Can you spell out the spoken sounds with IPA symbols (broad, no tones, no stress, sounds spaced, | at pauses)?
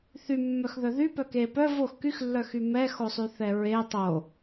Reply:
θ y mː œ x ð œ ð y p œ k e p œ v o x k y x lː œ x y m ɛ x o sˤ y θ ɛ ɹ e tˤ o